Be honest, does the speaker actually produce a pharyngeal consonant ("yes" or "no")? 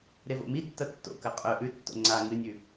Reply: no